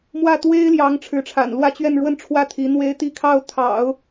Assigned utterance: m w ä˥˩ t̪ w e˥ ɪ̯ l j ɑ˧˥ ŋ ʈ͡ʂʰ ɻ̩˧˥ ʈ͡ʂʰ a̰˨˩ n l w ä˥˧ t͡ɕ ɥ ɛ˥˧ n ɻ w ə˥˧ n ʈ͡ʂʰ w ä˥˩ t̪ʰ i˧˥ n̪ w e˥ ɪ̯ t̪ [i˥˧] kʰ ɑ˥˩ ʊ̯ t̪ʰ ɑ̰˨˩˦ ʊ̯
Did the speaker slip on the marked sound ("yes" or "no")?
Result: no